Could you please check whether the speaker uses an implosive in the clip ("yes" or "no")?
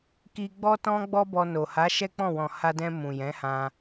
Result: no